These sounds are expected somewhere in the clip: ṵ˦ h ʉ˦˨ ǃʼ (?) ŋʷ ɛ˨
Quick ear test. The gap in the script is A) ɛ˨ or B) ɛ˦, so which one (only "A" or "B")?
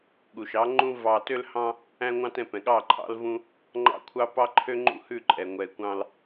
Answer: A